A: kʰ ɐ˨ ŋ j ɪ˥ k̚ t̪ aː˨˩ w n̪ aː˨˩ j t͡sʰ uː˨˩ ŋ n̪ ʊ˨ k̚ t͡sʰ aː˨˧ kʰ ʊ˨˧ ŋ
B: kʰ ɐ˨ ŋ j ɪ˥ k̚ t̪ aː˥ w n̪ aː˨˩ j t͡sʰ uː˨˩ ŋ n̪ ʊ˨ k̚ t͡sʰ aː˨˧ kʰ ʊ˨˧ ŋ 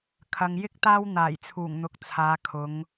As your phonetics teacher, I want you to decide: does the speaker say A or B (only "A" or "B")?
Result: B